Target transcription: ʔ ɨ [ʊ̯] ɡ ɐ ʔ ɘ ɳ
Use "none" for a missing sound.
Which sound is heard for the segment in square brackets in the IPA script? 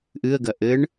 ə̯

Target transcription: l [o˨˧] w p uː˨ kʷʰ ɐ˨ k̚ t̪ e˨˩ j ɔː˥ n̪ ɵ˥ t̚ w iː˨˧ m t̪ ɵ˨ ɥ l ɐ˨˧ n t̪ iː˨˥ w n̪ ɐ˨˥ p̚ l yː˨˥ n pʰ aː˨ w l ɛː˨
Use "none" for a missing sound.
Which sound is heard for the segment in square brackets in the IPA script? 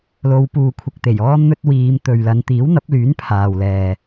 o˨˧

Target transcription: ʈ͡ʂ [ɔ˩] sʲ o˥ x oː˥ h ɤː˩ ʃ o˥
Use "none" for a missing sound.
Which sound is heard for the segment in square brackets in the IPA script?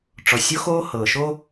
ɔ˩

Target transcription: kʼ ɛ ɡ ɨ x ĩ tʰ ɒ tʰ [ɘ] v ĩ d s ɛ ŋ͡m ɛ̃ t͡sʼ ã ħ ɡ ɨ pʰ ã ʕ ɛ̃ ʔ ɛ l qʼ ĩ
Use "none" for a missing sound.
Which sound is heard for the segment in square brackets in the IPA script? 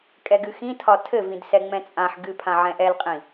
ɘ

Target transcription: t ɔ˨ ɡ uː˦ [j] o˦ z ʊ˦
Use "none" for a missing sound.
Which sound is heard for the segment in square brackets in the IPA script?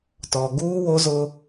w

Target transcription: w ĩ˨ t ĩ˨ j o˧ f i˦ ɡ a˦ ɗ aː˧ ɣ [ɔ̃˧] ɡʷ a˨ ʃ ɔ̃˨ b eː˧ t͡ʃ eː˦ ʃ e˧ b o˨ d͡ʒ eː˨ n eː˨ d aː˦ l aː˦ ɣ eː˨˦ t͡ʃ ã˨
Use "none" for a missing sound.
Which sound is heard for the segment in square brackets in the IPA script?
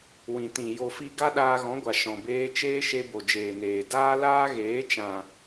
ɔ̃˨˦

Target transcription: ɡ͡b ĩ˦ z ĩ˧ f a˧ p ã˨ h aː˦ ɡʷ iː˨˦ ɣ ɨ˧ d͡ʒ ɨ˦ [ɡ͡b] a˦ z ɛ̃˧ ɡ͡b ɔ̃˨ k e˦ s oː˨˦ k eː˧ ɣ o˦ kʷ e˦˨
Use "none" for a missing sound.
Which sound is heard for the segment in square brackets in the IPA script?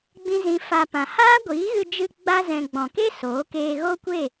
ɡ͡b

